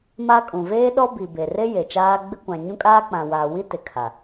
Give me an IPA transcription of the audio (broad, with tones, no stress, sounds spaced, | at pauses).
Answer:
m a˦ kʼ ũ˨ v eː˦ ɗ ɔ˦ b i˨ b e˨ r e˦ j e˨ t͡ʃ aː˦ ɡ͡b ɪ˦ kʷ ã˨ ɲ ũ˦ kʼ aː˦ k͡p ã˨ w aː˨ w i˦ t ɪ˨ kʰ a˨